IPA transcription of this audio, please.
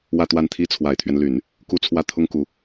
w ä˥˧ t̪ w a˥˩ n t̪ʰ i˥ t͡sʰ w a˨˩ ɪ̯ t̪ʰ ɥ ɛ˦ n l y˨˩˦ n | k u˥˧ t͡sʰ w ä˥˩ t̪ʰ ʊ˥ ŋ k u˧˥

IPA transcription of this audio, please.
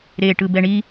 ɾ e ʈ ɯ b ɛ ɳ i

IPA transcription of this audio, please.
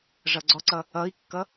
ʐ ʌ ɡ͡ǀ ɔ ǀ ʌ | ʌ i̯ kː ʌ

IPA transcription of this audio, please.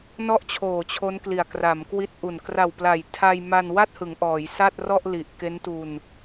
n ɔ˥˩ ʔ t͡ɕʰ oː˨˩ t͡ɕʰ o˦˥ n k l i˨˩ a̯ k r a˩˦ m k w i˦˥ t̚ ʔ u˨˩ n k r a˨˩ w p l a˨˩ j tʰ a˧ j m a˧ n w a˥˩ t̚ h ɯ˩˦ ŋ ʔ ɔː˩˦ j s a˥˩ t̚ r ɔ˥˩ ʔ l i˨˩ ʔ k e˦˥ n t u˧ n

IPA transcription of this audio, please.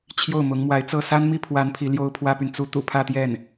t͡ɕʰ j o˥˩ ʊ̯ m ʊ˧˥ ŋ m w a˧˥ ɪ̯ t͡s ɤ˥˩ s a˥ n m i˥ pʰ w a˧˥ n pʰ i˧˥ l j o˥ ʊ̯ pʰ w ä˥ p y˨ n t͡s u˧˥ t̪ ṵ˨˩ pʰ ä˥˧ t̪ j ɛ˥˩ n

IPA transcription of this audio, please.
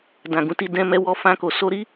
d ã˨ ɡ ũ˨ t i˧ d ɛ̃˧ m ɛ˧ w ɔ˧ f ã˧ k o˨ s o˧ ɾ i˦

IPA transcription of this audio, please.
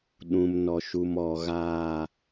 ɗ ũ˨ m n ɔ˨ ʃ u˨ m ɔ˨ ɣ aː˨

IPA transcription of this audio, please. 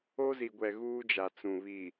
o˦ z i˨ ɡʷ ɛ˨ ɣ uː˦ d͡ʒ a˨ t͡s ũ˨ β i˨

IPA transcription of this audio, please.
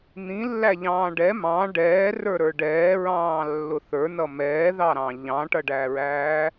n̪ ĩ lː æ ʎ ɑ̃ː ɖ ɛ m ɑ̃ ɖ ɛː r ə˞ ɾ ə˞ ɖ ɛː ɹ ɑ̃ː lː ʊ θ ə˞ n ʌ m ɛː ð ɑ ɾ ɑ̃ ʎ ɑ̃ ʈ ʌ ɖ æ ɹ æː

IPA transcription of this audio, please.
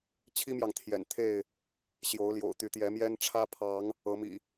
t͡ɕʰ i˦ m j ɑ˨ ŋ t̪ʰ j ɛ̰˨˩ n t̪ʰ e˥˨ ɪ̯ | ɕ j o˨˦ ʊ̯ l j o̰˨˩ ʊ̯ t̪ y˨˦ t̪ j ɛ˨˦ m j ɛ˦ n ʈ͡ʂʰ ä˦ pʰ ɑ˨˦ ŋ | ɤ˨˦ m ḭ˨˩

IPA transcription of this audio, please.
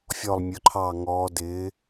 fʲ ɔ˧˩ lˠ mʲ ʊ˩˧ ǃʰ ɑ˧˩ ŋ ɔː˩˧ d ɪː˩˧

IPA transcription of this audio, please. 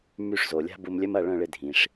m y˥˩ ʂ z o˩ lʲ a̤˥ b u˧ m lʲ œ˥ m ɐ˥˩ ɭ œ̃˥˩ ɭ ɪ˧ dʱ ĩ˩ ʂ

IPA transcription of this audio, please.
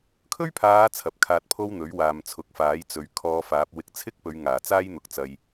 kʰ ɵ˥ ɥ pʰ aː˨˧ t͡sʰ ɐ˨˥ p̚ kʰ aː˧ t̚ pʰ o˥ w n̪ ɵ˨˥ ɥ w aː˨ m t͡sʰ ʊ˨˥ k̚ f aː˨˥ j t͡s ɵ˨˧ ɥ kʰ ɔː˧ f aː˨˥ p̚ w ɪ˨ k̚ t͡sʰ ɪ˥ k̚ p ɵ˨˧ ɥ ŋ aː˨˩ t͡s aː˥ j n̪ ʊ˨ k̚ t͡s ɐ˧ j

